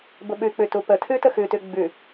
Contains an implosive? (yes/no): yes